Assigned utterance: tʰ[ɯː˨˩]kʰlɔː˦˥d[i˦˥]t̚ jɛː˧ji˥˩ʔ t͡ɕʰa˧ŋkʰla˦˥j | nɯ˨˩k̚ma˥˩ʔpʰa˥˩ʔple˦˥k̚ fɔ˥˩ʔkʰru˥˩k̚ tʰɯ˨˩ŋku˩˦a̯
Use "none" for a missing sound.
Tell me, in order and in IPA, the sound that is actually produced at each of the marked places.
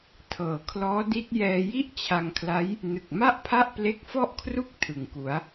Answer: ɤː˨˩, i˦˥

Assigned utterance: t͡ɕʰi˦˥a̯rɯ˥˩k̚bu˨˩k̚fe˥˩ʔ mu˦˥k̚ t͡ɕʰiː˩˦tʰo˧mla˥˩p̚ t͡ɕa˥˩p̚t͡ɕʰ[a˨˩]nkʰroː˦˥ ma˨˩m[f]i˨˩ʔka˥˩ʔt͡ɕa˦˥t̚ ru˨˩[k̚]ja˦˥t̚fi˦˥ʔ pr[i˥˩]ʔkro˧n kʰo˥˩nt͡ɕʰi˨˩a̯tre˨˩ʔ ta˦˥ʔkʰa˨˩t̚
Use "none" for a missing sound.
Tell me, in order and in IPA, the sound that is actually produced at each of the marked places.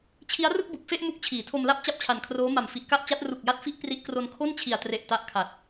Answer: a˨˩, f, k̚, i˦˥

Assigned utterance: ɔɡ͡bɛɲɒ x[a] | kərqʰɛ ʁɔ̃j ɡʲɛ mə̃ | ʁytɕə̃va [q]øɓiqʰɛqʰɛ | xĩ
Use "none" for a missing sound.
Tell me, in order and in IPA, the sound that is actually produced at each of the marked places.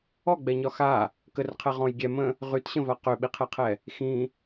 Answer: a, q

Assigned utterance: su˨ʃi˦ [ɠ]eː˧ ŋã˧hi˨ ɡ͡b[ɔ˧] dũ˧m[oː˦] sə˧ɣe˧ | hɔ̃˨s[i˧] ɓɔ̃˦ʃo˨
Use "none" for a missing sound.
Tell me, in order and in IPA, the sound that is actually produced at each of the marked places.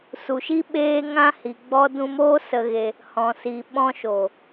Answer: ɓ, ɔ˧, oː˦, i˨

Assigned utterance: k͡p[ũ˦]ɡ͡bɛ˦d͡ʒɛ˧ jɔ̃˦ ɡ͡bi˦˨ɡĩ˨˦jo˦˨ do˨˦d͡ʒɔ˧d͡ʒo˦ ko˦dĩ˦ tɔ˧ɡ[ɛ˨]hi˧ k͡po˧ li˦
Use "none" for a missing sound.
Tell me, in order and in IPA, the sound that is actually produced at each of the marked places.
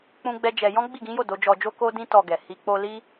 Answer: ũ˦, ɛ˨

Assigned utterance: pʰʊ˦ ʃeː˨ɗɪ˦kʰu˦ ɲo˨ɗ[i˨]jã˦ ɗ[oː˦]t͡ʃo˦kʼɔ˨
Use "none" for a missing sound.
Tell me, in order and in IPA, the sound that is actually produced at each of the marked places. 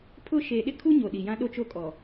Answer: i˨, o˦

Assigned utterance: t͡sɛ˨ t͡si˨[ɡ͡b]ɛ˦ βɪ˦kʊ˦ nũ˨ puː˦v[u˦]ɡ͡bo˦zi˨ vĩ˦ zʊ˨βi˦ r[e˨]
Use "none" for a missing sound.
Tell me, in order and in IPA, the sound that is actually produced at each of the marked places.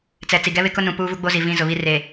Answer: ɡ, u˦, e˨

